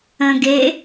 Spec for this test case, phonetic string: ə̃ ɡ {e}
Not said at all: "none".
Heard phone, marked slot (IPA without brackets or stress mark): e